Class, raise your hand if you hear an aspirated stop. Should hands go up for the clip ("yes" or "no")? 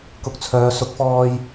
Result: yes